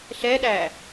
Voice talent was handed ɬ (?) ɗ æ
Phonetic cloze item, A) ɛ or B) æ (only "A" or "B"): A